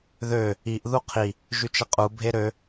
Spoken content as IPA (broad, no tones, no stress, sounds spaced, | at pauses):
ð ø | i ʔ ð u qʰ i | ʒ y t͡ʃ ə qʼ u bʱ e ɾ ø